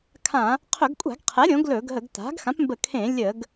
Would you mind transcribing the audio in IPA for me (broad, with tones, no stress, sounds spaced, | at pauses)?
kʰ ã˧˩˧ | qʰ ɵ˧˩˧ ɡ kʷʼ a̤˧˩˧ ɡ qʰ ɛ˩˥ ɾʲ õ˩˥ ɡ l ɵ˧˩˧ ɡ ɦ ə˧˩˧ ɡ t a̤˩˥ ɡ x ã˩˥ p m b ə˧˩˧ kʰ ẽ˧˩˧ lʲ ə˧˩˧ ɡ